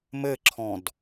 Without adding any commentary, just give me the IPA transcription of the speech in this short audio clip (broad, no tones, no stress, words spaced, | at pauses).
mɘǁʰɔ̃d